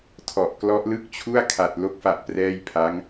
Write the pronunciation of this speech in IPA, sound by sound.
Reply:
tʰ ɔ˨˩ ʔ k l ɔ˦˥ ʔ l ɯ˥˩ k̚ t͡ɕʰ u˥˩ a̯ kʰ a˨˩ t̚ l o˦˥ k̚ f a˨˩ ʔ p r ɛː˥˩ j pʰ a˦˥ ŋ

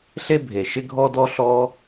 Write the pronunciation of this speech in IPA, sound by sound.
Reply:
ɬ e˥ bʱ e˩ ʃ ɪ˥ ɡʱ ɔ˥ d ɔ˥ ɬ ɔ˥

